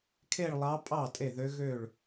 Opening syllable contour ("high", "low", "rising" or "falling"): falling